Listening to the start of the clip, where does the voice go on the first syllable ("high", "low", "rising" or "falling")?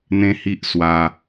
high